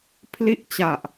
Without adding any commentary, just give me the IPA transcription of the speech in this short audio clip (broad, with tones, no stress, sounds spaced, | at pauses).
pʰ l i˥˩ ʔ t͡ɕ a˨˩ ʔ